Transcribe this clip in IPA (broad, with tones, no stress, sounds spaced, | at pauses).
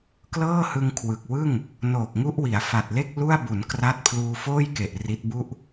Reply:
k l ɤː˥˩ h ɯ˧ ŋ kʰ w ɯ˨˩ k̚ w ɯ˥˩ ŋ | n oː˨˩ k̚ ŋ u˦˥ ʔ w i˩˦ a̯ f a˨˩ t̚ l e˥˩ k̚ l u˥˩ a̯ b u˩˦ n k r a˥˩ t̚ pʰ l uː˧ f oː˥˩ j k e˨˩ ʔ r i˦˥ t̚ b u˥˩ ʔ